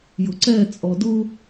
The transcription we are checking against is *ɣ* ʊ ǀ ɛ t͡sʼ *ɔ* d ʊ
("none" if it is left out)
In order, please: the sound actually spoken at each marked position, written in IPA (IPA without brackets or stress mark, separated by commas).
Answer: j, ɔ